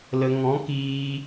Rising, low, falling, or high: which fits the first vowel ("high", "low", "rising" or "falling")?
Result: low